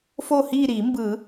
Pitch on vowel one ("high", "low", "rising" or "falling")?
falling